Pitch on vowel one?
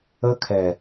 high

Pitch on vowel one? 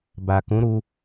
low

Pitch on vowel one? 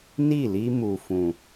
falling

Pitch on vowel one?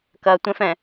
low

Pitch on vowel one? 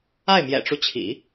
falling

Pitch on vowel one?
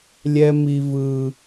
high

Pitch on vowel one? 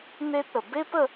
high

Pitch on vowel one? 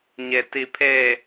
low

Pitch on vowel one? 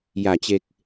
low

